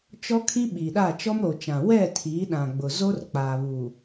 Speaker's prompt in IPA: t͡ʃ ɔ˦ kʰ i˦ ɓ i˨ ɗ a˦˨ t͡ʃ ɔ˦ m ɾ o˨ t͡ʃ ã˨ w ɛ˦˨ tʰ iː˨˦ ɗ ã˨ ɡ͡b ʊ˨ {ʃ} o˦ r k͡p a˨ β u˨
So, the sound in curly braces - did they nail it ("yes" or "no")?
no